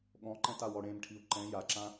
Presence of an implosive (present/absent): present